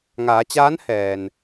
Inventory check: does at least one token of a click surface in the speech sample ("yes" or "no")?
no